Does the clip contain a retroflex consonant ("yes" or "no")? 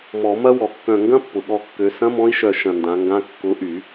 no